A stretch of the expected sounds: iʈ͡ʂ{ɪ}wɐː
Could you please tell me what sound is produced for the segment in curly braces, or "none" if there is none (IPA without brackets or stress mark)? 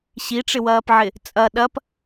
ɪ